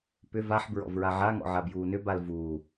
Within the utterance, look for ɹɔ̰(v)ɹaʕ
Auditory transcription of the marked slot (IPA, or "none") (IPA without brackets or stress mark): v